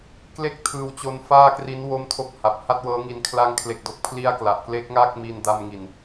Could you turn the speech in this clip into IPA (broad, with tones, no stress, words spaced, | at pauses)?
kle˥˩k̚ tʰɯː˧wt͡ɕo˦˥nfaː˥˩kri˦˥n wo˥˩mtʰo˥˩k̚ ha˨˩p̚ha˥˩t̚ wɤː˦˥ŋi˧n kʰla˧ŋkʰle˨˩k̚do˨˩k̚pʰli˦˥a̯ kla˨˩ʔkle˦˥k̚ŋa˥˩k̚ mi˧nda˧mŋi˨˩n